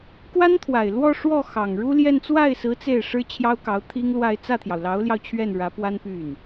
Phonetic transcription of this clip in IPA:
k w a˥ n t̪ʰ w a˨˩ ɪ̯ l w ɔ˥˧ ʂ w ɔ˥˩ x ɑ˨˩ ŋ ɻ u˥ l j ɛ˥˧ n t͡s w a˥˩ ɪ̯ s ɹ̩˧˥ t͡s e˥˩ ɪ̯ ʂ ɻ̩˥ t͡ɕʰ j ɑ˥ ʊ̯ k ɑ˧˥ ʊ̯ t̪ʰ i˥ ŋ l w a˥˧ ɪ̯ t͡s ä˥˩ t̪ʰ j ɑ˩ ʊ̯ l ɑ˧˥ ʊ̯ l j ɑ˧ ʊ̯ t͡ɕʰ ɥ ɛ˥˩ n ɻ ä˧˥ p w a˥ n p y˥˩ n

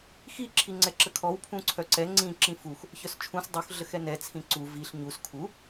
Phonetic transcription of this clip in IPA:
x i ǁʰ i ŋ͡ǀ ɛ ǁ ə kʰ ɔ w pʰ ũ ǀʰ œ ǀ ɛ ŋ͡ǀ ĩ ǁ ĩ f u x | ç œ s t͡ʃʰ ũ s dˤ u x ɮ ə x ɛ n ɛ t͡sʰ ĩ ǀ u v i ɬ ɲ u s kʰ u

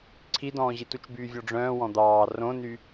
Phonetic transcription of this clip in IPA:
ǀʰ i d ɔ̃ː ʑ i t u t͡ʃ b yː vʲ ɔ ɖ͡ʐ œ̃ː w ɔ̃ d̪ ɑː r õ n y

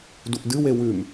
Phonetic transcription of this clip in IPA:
d u ʔ d ɨ w e w ʉ m

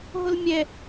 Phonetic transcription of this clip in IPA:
ɦ o l mʲ ɛ

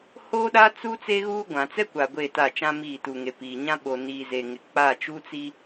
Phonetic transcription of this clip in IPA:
h oː˦ ɗ a˦ t͡s u˦ t͡s e˦ ɣ uː˦ ɡʷ ã˨ t͡s ɛ˦ kʷ a˨ ɡʷ e˦˨ t a˦˨ t͡ʃ ã˦ m iː˦˨ t u˨ ŋ e˨ p iː˨ ɲ ã˦ ɓ o˨ n iː˨ z e˨ ŋ ɪ˨ k͡p a˦˨ t͡ʃ u˦ t͡s i˦

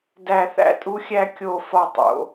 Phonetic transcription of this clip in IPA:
d æ˥˧ θ æ̰˥ tʼ u˥ xʲ æ˥ kʲ o˥˧ f ɒ˥˧ tˤ o̰˩˧

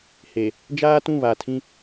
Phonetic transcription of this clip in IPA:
h e˨ | d͡ʒ aː˦ t ũ˦˨ β a˨ tʰ ĩ˦

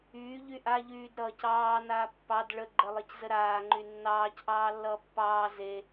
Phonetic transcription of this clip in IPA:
yː ʎ y ʔ a ʎ yː d ɾ ʌː c ɑː n aː pː ɑ d ɭ ə ɡ͡ǃ ə lˠ e c z ə ɾ aː ŋ͡ǃ y nː ɑː c ʔ ɑː lː ʌː pː ɑː z e

